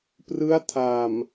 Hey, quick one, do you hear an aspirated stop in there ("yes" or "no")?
yes